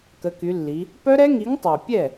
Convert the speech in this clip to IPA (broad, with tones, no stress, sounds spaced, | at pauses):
k ə˩˧ k y˩˧ lː i˩˧ | p œ˦˥ ɾ ɛ˦˥ ŋ i˨˥ ŋ tˤ a˨˩ pʲ ɛ˥˩